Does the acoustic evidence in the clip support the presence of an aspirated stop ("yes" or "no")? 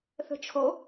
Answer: yes